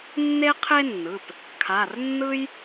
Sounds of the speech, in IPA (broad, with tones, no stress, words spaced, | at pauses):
nːe˥qʰe˥nːɯ˩˧˩p | kʰa˩˧˩rnːɯ˥j